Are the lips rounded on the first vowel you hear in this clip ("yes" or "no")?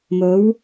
yes